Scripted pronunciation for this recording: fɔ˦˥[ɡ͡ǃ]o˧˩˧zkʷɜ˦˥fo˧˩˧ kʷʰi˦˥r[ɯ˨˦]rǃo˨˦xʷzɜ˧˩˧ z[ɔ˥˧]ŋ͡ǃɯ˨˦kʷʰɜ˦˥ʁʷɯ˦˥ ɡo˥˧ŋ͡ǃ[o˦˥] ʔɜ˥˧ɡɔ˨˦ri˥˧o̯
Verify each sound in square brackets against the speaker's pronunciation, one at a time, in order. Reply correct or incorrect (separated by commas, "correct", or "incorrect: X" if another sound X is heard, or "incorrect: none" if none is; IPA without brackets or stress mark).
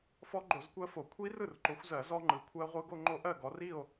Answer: correct, incorrect: ɯ˥˩, incorrect: ɔ˦˥, correct